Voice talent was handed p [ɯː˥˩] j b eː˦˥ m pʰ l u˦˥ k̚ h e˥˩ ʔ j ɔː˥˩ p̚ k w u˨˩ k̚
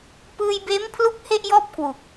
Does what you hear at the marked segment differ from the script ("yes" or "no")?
yes